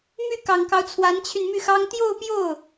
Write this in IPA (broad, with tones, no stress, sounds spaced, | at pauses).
m y˥˩ k ɑ˨˩ ŋ k ɑ˦ ʊ̯ t͡sʰ w a˧˥ n t͡ɕʰ y˧ n m y˥˩ x ɑ˥ ŋ t̪ j o˥˧ ʊ̯ p j o˥˩ ʊ̯